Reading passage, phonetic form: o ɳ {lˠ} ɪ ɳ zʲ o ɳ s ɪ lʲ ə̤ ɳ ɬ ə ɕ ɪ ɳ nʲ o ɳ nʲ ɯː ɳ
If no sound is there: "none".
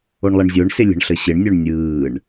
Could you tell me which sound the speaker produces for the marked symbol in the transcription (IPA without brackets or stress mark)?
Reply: lˠ